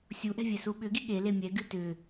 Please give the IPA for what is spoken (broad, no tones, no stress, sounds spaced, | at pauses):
sʲ u ʔ ɛ̤ vʲ ɛ s u ɓ ʏ ɡ i ɠ e l e mʲ ɛ ɡ ɨ t ʏ